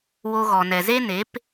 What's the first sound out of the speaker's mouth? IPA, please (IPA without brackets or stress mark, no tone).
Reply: w